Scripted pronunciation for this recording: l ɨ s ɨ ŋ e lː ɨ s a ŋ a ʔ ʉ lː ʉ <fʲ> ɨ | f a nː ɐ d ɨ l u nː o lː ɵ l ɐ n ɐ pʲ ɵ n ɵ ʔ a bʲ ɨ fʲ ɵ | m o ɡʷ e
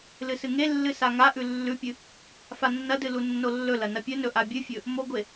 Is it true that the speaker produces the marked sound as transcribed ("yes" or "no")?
no